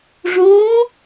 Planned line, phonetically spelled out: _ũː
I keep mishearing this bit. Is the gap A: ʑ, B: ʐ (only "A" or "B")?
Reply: B